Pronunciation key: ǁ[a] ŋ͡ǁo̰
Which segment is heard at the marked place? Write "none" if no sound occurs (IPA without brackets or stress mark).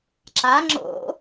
a